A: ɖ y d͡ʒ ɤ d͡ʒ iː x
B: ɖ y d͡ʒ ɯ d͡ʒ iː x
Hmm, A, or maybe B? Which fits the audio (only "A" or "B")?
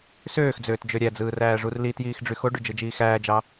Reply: B